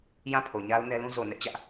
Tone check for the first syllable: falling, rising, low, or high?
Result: falling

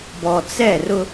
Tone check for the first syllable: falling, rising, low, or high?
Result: low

